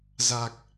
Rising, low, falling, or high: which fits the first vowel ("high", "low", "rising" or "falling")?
low